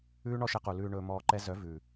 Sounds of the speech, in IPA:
ʉː˦ ɳ ɔ˦ ʃ ɛ˧ q u˨ l ʉː˧ ɳ ɵː˧ m ɔː˧ ǃ ɛ˦ z œ˨˦ v ʉ˨

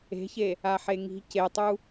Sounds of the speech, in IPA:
e̤ ç e | a ħ e ŋ i̤ c e tˤ u

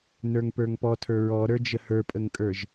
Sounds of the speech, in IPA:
n ə˞ ŋ p ə˞ ŋ p ɔ tʰ ə˞ ɹ ɔ ɾ ə˞ d͡ʒ ə h ə˞ pʼ ə ŋ kʼ ə˞ ʒ

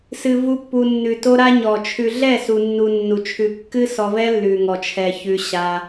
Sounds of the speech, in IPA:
s ɨ˨ v u˧ pː u˨ nː ʉ˨ t o˦ ɾ a˦ ɲ ɔ˨ t͡ʃʰ ʉ˨ ɮ ɛ˦˨ s u˨ nː u˧ nː u˨ t͡ʃʰ ʉ˧ kː ɨ˦ s ɔ˧ v ɛ˦ lː ʉ˨ ŋ ɔ˨ t͡ʃʰ ɛ˨ ç ʉ˧ ɕ a˧

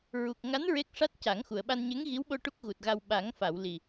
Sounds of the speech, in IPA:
ɹ u˨˩ k̚ ŋ a˧˥ n ɹ e˦˥ k̚ ʂ a˦˥ t̚ c a˨˩˦ ŋ x u˨˩˨ ə̯ ɓ a˧ n ɲ e˧˥ ŋ ɣ i˧˥ w ɓ o˧ ʈ u˦˥ k̚ ɣ u˨˩ t̚ ɣ a˧ w ɓ a˨˩˦ ŋ f a˨˩˨ w l i˨˩

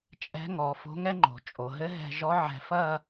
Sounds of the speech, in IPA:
t͡ʃʼ ɛ̤˧˥ ŋ ɔ˩˧ f o̤˧˥ ŋ ɛ˥ ŋ͡ǃ o̤˩˧ t͡ʃʼ o˩˧ ɦ ɘ˧˥ ɦ ɛ̤˧ ʒ ɔ˧˥ ʕ ɛ̤˧ f ɐ˥˧

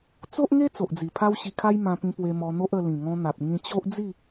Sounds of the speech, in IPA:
t͡s o˦ ʔ ŋ e˦ t͡s o˨ ʔ d͡z i˨˩ pʰ a˦ w ɕ i˧ kʰ a˦ j m ã˧ p ĩ˧ p w e˧ m ɔ˧ n̪ o˦ ʔ ə˧ l ĩ˨˩ ŋ ɔ̃˧ n̪ a˨ p̚ ŋ ĩ˧ t͡ɕ o˦ ʔ d͡z i˥˧

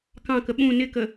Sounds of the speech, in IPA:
k ɑ̃ k ə ɓ ũ n ɪ k ə

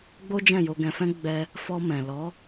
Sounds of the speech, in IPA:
ɡ͡b o˦ d͡ʒ ɛ̃˦˨ j o˧ ɡ ɛ̃˧ f ɛ̃˦ ɡ͡b ɛ˦ | f ɔ˧ m ɛ̃˨ l ɔ˨˦

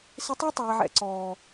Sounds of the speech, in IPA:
s ɪ˧ tˤ ɑ˦ tˤ ɛː˨ ʕ ɛ̰˨ ǀ ɔː˨

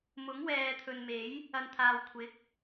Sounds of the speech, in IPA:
m ʊ˨˥ ŋ w ɛː˨ t̪ʰ ɵ˨ n m e˨˥ j | ɐ˨ n t̪ʰ aː˨ w kʷʰ ɪ˨˥ k̚

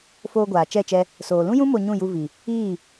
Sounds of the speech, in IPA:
f oː˧ ɡʷ aː˨ t͡ʃ ɛ˦˨ t͡ʃ ɛ˧ | s oː˨ l ũ˦ j ũ˦ m o˧ ɲ ũ˦˨ j u˧ v i˨ | iː˦˨

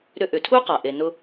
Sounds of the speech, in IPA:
ɾ ʏ˧ ʔ ʏ˩ tʰ u˥ q a˩ ʔ e˩ n ʊ˧

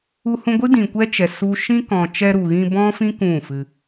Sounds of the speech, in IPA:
u˧ h ũ˧ ɡʷ ɨ˦ d ĩ˨ kʷ ɛ˦ t͡ʃ ɛ˨ s u˦ ʃ ĩ˦ k ɔ̃˨ t͡ʃ ɛ˧ ɾ u˨ ɣ ĩ˧ b ɔ̃˦ f ĩ˦ k ũ˦˨ f ɨ˧

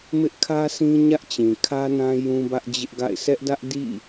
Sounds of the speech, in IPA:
m ɪ˦ ʔ kʰ ä˦ s ĩ˦ ɲ ä˦ ʔ t͡ɕ ĩ˨ kʰ ä˦ n ã˦ j ũ˦ b ä˦ ʔ d͡ʑ ɪ˦ ʔ ɡ a̰˦˨ ɪ̯ s ɛ˦ ʔ d ä˦ ʔ d ḭ˦˨

